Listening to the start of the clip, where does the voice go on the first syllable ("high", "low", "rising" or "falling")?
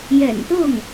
low